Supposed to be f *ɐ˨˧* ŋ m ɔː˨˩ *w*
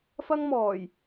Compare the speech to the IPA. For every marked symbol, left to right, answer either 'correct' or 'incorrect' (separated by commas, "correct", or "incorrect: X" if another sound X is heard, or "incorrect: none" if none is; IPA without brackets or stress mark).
incorrect: ɐ˥, incorrect: j